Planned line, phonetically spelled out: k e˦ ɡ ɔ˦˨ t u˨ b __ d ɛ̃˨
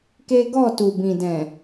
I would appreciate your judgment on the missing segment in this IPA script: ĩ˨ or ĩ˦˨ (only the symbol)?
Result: ĩ˨